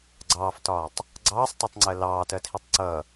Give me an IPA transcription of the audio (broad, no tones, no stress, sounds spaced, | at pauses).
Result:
ɡ͡ǀ ɑː f t ɒː tˤ | ɡ͡ǀ ɑː sˤ t ɜ tˤ ŋ͡ǀ ɜ l ɑː t ɜ tʰ i tˤ ǀ ʌ